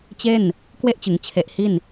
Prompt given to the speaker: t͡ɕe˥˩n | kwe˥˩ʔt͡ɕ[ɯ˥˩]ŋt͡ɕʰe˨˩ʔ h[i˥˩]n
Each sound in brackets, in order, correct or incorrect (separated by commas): incorrect, correct